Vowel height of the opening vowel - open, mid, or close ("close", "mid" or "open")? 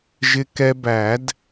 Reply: close